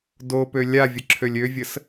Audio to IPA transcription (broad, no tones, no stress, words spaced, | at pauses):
dopø lʲavʲə ǁʰølʲøvʲəs